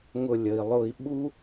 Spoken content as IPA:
ŋ ʊ˧˩ lʲ ə˩ i̯ lˠ ʊ˧˩ i̯ ɓ u˦

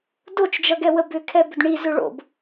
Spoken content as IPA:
d o t͡ʃ d͡ʒ ʌ ɡ ɛ w ə b ʏ kʰ ɛ b ʏ d ɳ i z ʏ ɭ o̰ b

